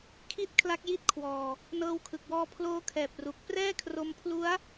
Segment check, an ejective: absent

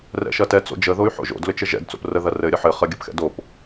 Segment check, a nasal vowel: absent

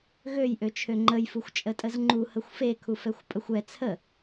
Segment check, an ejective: present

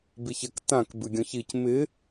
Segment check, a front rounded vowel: absent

